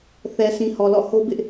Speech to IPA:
θ ɛ˨ sʰ ĩ˨ h ɔ˨ l ɔ̰˦˨ h o˦ b ɪ˦ ʔ

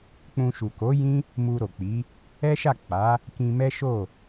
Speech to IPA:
k͡p ũ˧ ʃ u˨ k o˨˦ j ĩ˦ | m u˧ ɾ o˨ k͡p i˨˦ | ɛ˦ ʃ a˦˨ k͡p a˨˦ | k ĩ˧ m ɛ˦ ʃ o˦˨

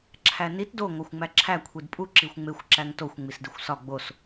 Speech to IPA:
ǁʰ æ n i t d o ŋʷ æ xʷ ŋ͡m æ ǁʰ æ kʷʰ i d pʼ u ǁ i xʷ ŋ͡m e xʷ ǁ æ ŋ t o xʷ ŋ͡m i s d i xʷ s ɒ ɡ͡b o s

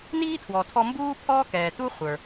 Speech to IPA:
n iː˥ tʰ w ɔ˩ tʰ ɔ˧ m b uː˥ pʰ ɔː˥ k ɛː˩ t u˥ χʷ ə˞˩

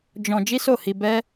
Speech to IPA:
d͡ʒ ɔ̃˧ d͡ʒ i˦ s o˦˨ h i˧ b ɛ˦

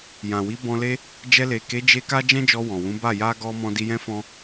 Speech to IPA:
j ã˨ w i˨˦ b ɔ̃˧ l e˦ | d͡ʒ ɛ˧ l e˨ k e˨˦ d͡ʒ e˧ k a˦ d͡ʒ ɛ̃˦ d͡ʒ ɔ˧ w ɔ̃˨ w ũ˨˦ b a˦˨ j a˧ ɡ ɔ˧ m ɔ̃˧ d i˧ j ɛ̃˦ f ɔ̃˦

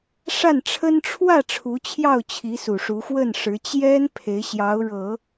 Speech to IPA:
ʂ a˥˩ n ʈ͡ʂʰ ə˥ n ʈ͡ʂʰ w ä˥˩ ʈ͡ʂʰ u˧˥ t͡ɕʰ j ɑ˥˩ ʊ̯ t͡ɕʰ i˧˥ s u˨˩ ʂ u˧˥ x w ə˥˩ n ʂ ɻ̩˧˥ t͡ɕ j ɛ˥ n pʰ e˧˥ ɪ̯ ɕ j ɑ˧˥ ʊ̯ ɻ ɤ˨˩˦

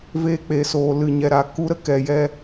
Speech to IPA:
v eː˧ k͡p eː˨ s oː˨ l ɨ˨ ɲ ɛ˨ ɾ a˨ k u˧ ɾ ə˦ k ɛ˨ j ɛ˧

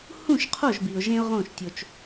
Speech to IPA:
h ũ˦˨ ʃ qʰ o˦˨ ʒ b i˨ ʊ̯ ʒ ẽ˦ ʊ̯ ʁ õ˦˨ ʃ tʲ o˧ t͡ʃ

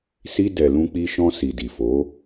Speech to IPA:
s i˧ d ɛ˨ l ũ˧ k͡p i˧ ʃ ɔ̃˧ s i˨ d i˨ f o˨˦

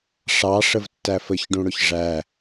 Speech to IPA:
ʂ ɑ ʂ ə v tː æ f ə ç ɖ ũ ɽ ʊ ç ʐ æ

